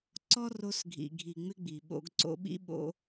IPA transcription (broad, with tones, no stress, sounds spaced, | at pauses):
ǀ ɔ˦ r o˧ s ɡʱ ḭ˨ ɡʱ i˨ ŋ͡m ɪ˦ ɡ͡b i˨ ɓ o̰˧ ɡ ǀ o̰˧ ɓ ḭ˦ ɓ o̰˧